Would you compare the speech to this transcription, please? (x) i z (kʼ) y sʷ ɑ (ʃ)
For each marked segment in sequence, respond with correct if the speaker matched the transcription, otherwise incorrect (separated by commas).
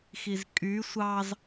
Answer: correct, correct, incorrect